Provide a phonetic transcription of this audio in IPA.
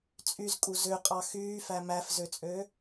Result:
t͡sʼ y z kʼ u z ø qʼ ɑ x yː f æ m æ f z ø t͡sʼ ø

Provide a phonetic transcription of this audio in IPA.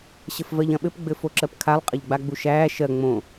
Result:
ɕ ɘ f v ɜ ʎ ɐ̃ ɓ ɘ p ɡ͡b ɘ f o ǁ ɜ p kʰ a lˠ qʼ ɐ ʎ ɡ͡b a ɡ͡b u ʃ æː ʃ ɜ ŋ͡m õ

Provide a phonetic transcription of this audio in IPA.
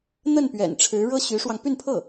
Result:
n̪ ə˥˩ n p ɥ ɛ̰˨˩ n ʈ͡ʂʰ ɻ̩˧˥ ɻ ɤ˥ ɕ y˧˥ ʂ w ɑ˧ ŋ p y˥˧ n pʰ ɤ˥˩

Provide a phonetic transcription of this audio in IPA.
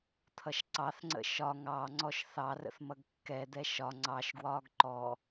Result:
t̪ʰ ʌ ʃ ǀ ɑ θ ŋ͡ǀ ə̰ ʃ ɒ ŋ ɑ ŋ͡ǀ ɔ ʃ θ ɑ r ə̰ θ m ʌ ɡ kː ɛ d̪ ɛ ʃ ɒ ŋ͡ǀ ɑ ʃ ɡ w ɒː ɡ ǃ ɔ

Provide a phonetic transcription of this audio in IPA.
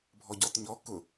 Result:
bʱ ɔ ɟ ɔ t ɲ ɔ k ʊ

